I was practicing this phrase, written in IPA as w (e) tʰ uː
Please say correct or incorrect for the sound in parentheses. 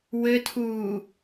incorrect